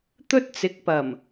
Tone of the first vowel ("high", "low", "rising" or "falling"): high